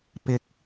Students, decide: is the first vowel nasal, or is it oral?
oral